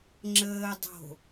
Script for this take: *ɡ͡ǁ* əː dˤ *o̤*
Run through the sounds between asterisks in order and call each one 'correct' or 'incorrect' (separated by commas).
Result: incorrect, correct